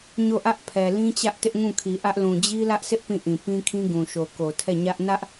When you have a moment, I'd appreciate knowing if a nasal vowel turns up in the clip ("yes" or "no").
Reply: yes